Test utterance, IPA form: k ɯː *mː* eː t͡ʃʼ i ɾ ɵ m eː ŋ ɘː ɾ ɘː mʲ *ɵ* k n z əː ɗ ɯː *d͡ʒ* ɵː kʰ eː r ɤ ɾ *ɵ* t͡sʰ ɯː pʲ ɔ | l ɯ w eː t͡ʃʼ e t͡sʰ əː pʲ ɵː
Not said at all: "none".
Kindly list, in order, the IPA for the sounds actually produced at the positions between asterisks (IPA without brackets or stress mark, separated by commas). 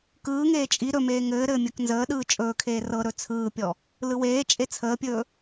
ŋ, ɵ, t͡ʃʼ, ɵ